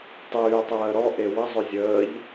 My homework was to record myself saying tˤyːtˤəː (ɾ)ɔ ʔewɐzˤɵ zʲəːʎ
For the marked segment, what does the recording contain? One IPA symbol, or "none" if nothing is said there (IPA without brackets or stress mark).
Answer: ɾ